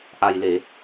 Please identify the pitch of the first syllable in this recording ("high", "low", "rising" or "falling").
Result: low